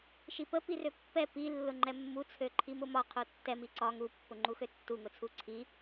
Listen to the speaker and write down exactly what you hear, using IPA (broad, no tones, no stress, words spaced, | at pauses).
ʃipə pirøpːɛ pi lːʊŋ͡ǃɛmːu t͡sʰøǃʰimʊmɒ qʰotːɛ miǀɒ ŋu pːʊŋ͡ǃuxøtːu ŋʊt͡sʰuǀʰi